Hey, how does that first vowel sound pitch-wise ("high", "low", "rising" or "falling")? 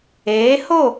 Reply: rising